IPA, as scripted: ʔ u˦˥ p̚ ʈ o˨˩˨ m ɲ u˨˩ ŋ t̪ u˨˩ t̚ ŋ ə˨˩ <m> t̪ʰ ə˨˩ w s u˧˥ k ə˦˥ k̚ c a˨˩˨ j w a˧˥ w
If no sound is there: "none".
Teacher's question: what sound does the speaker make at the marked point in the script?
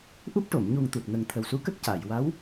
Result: ŋ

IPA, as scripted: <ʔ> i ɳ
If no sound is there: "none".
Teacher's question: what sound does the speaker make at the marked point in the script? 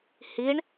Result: h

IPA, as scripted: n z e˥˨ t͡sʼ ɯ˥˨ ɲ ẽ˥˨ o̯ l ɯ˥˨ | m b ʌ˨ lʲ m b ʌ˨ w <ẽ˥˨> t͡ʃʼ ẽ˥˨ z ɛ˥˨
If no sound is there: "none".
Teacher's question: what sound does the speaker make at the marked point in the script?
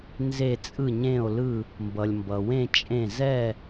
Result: ẽ˥˨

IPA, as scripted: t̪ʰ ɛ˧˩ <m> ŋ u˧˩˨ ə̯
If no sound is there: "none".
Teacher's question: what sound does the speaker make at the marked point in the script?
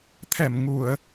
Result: m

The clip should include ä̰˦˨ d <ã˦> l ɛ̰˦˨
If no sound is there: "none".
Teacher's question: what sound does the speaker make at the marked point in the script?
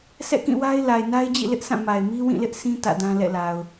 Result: ã˦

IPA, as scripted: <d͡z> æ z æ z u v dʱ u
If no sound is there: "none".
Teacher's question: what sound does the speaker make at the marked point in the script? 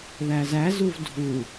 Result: ð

